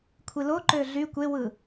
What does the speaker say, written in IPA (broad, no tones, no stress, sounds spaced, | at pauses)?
kʷʰ i l o ǃ ø ɮ y kʷ e w ɯ